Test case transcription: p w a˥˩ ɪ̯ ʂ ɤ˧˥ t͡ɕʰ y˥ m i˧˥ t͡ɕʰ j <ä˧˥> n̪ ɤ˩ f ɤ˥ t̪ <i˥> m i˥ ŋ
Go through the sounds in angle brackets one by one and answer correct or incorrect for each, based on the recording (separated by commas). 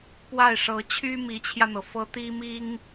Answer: incorrect, correct